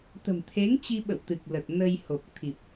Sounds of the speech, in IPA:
t̪ ə̤˨˩ m t̪ʰ e˨˦ ŋ t͡ɕ i˧ ɓ ə̰˧˨ w t̪ ɨ˨˩ k̚ l ə˨˩ t̚ n ə˧ j h o˨˩ k̚ t̪ʰ i˨˩ p̚

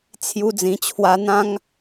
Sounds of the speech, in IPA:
t͡sʰ j u˧ d͡z ĩ˨˩ t͡ɕʰ w a˧ n̪ ã˦ ŋ

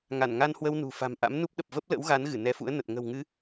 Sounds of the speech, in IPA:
ŋ a˧˩ n ŋ a˧ n h w ə˧ w n ṳ˨˩ f a̤˨˩ m ʔ a̰˧˥ m n u˦˥ p̚ ɗ ə˨˩ p̚ v ə˦˥ p̚ l ə̰˧˥ w ɣ a˨˦ n ɣ ɨ˧˩ n ɛ˨˦ f ṵ˧˥ ə̯ n ə˨˩ t̚ ŋ ə̤˨˩ w ŋ ɨ˨˦

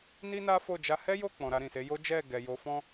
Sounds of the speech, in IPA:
n i˦ n a˦ f o˦˨ d͡ʒ a˧ h ɛ˦ j o˦˨ k͡p ɔ̃˨ ɾ a˧ ɾ ĩ˨ s e˨˦ j o˦ d͡ʒ ɛ˦˨ ɡ ɛ˨ j o˨˦ f ɔ̃˦

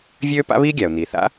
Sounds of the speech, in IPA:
vʲ øː˥ p a̰˥ β iː˥ ɡʲ a˩ ʊ̯ n̪ iː˩ θ a̰˥

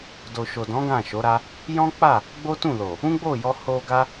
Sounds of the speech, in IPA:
d o˨ ʃ o˨ d ɔ̃˨˦ ɡ ã˦˨ ʃ o˨˦ ɾ a˦ | j ɔ̃˦ k͡p a˦˨ | ɡ͡b o˦ t ũ˦˨ l o˨ | ũ˦ ɡ͡b o˦˨ j ɔ˧ h o˧ ɡ a˦

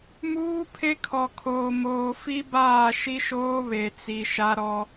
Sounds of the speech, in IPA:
m uː˦ pʰ e˦ kʰ ɔ˨ kʰ oː˨ m oː˨ f i˦ b aː˦˨ ʃ i˦ ʃ oː˦ β e˨ t͡s i˨ ʃ a˦ ɾ ɔ˦

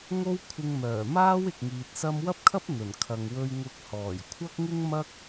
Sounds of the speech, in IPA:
ŋ o˥ w kʷʰ ɪ˧ ŋ m œː˨˩ m aː˥ w ɪ˨ k̚ ŋ iː˨ t̚ s ɐ˥ m w ɐ˥ p̚ kʰ ɐ˥ p̚ n̪ ɵ˨˩ n kʰ ɐ˨ ŋ w ɵ˧ ɥ ŋ ʊ˨˥ k̚ h ɔː˨˩ j kʷʰ ɐ˥ k̚ ŋ ɪ˥ ŋ m ɐ˥ k̚

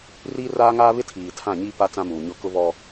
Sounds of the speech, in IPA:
r iː˦ r aː˦ ŋ aː˦ β ɪ˦ tʰ iː˨ tʰ ã˦˨ ɲ iː˦ p a˦ t͡s ã˦ m uː˨ ɲ ʊ˦ k ʊ˦ β ɔ˦

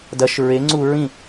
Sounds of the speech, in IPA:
d ɐ ʃ ɹ e ŋ͡ǀ u ɹ ĩ

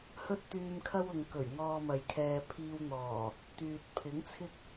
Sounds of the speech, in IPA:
h ɵ˥ t̚ t̪ yː˧ m kʰ ɐ˥ w ʊ˨ ŋ k ɵ˨˩ ɥ ŋ ɔː˧ m ɐ˨ j kʰ ɛː˧ pʰ iː˧ w n̪ ɔː˨˩ | t̪ yː˨ t̚ pʰ ɪ˨˥ ŋ t͡sʰ ɪ˥ k̚

